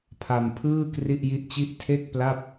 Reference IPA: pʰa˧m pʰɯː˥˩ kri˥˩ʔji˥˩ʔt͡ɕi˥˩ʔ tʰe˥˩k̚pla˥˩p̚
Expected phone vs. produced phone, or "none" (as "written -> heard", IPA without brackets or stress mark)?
none